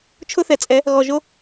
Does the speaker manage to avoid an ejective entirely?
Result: no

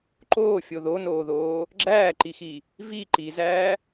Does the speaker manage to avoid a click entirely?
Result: no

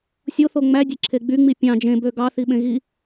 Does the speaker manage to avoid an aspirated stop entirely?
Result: no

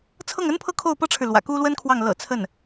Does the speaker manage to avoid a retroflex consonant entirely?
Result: no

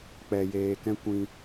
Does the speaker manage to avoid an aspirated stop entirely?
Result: yes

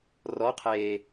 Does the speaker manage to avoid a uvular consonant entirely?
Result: no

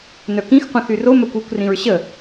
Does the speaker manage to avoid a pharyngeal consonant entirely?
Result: yes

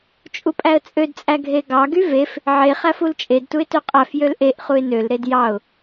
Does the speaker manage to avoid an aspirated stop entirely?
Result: yes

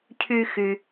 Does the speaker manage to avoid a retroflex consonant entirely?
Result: yes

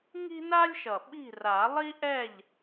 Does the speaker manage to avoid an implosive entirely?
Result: no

